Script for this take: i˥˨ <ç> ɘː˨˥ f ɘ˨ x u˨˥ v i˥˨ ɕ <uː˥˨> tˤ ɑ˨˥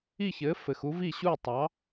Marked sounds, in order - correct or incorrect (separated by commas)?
correct, correct